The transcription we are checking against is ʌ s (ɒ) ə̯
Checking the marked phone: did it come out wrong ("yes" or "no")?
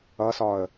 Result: no